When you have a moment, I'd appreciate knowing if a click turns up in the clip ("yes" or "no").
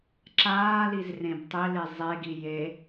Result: yes